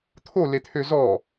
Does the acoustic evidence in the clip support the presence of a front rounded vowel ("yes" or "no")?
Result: yes